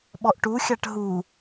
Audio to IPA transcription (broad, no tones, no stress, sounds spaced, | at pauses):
ɓ ɔ ʔ ʈ u xʲ a ʈ ɦ u